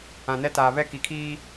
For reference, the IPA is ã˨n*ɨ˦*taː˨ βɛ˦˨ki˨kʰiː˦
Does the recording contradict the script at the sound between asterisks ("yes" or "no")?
yes